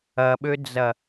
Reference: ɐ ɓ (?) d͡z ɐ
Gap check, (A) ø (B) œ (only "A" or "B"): A